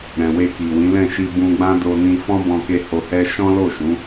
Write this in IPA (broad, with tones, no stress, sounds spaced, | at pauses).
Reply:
ɾ ɛ̃˨ w e˧ k i˨ w ĩ˨˦ l ɛ̃˦˨ ʃ i˧ b ũ˧ ɡ͡b ã˦ d o˧ n ĩ˧ f ɔ̃˦ b ɔ̃˧ k e˧ h o˧ h ɛ˦ ʃ ɔ̃˦ l o˦˨ ʃ ũ˨˦